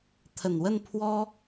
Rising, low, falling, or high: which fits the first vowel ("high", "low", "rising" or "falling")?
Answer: low